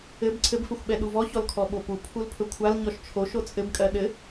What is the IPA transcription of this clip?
ɘ b ǀʰ ɘ b f ɘ xʷ ɓ ɛ ɗ u v ɔ ç ɔ l kʰ ɔ ɓ o p u pʰ u l pʰ ɵ kʷʰ a l ɲ ɔ ʃ t͡ʃʰ o ʃ o t͡sʼ ɘ b kʼ ɜ ɗ ɘ

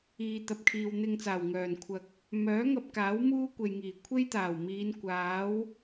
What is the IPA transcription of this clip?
iː˨ t̪ ɐ˨ p̚ kʰ iː˨ w n̪ ɪ˧ ŋ t͡s aː˨˩ w ŋ œː˨˩ n kʷʰ ɐ˨ k̚ | m œː˨˥ ŋ ɐ˧ p̚ k aː˨˥ w m uː˥ kʷ e˨ j ŋ iː˨˩ kʷʰ e˥ j t̪ aː˨˩ w m iː˨˧ n kʷ aː˨˥ w

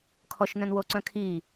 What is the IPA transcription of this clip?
kʰ ɔ ʃ n œ̃ n w o ǀ œ̃ kʰ i

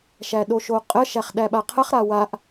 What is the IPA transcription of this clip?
ʃ æ ɗ o ʃ o qʼ ə ʃ æ χ ɗ æ ɓ a qʰ ə χ ɾ a w a ʔ

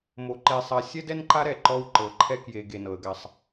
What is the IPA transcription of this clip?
m o˨ ǃ e˨ sˤ a˨ sʲ ɛ˦ d ɛ˦ n ǃ a˦ ɾ ɛ˨ ǃ ɔ˦ w ǃ ɤ˨ ǃʰ ɛ˦ k j e˨ ɡ e˨ n ɤ˨ ə̯ ɡ a˦ sˤ

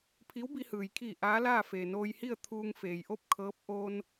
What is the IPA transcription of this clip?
pʰ i˧˥ w b i˧ h ɯː˩ j kʰ iː˧˩ ʔ aː˧˥ l aː˥˨ f eː˩ n oː˧ j h i˥˨ ə̯ t̪ʰ uː˧ ŋ f eː˩ j ʔ o˥˨ p̚ kʰ ɤː˧˥ p̚ ʔ o˧ n

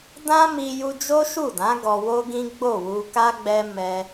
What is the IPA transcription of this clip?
d ã˦ m i˧ j u˧ d͡ʒ o˦ ʃ u˦˨ d ã˨˦ ɡ ɔ˧ w o˦ ɡ ĩ˦ ɡ͡b o˦˨ w u˧ k a˦ ɡ͡b ɛ˦ m ɛ˦

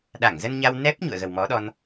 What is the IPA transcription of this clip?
ɗ a˧˩ ŋ z ə˧ n ɲ a˧ w n ɛ˦˥ p̚ ɲ ṵ˧˨ ə̯ ɣ ə˨˩ w m ɔ˨˦ ɗ ɔ˧ n

